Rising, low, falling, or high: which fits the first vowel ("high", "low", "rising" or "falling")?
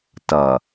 low